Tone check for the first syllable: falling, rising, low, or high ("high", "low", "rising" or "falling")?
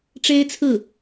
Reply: high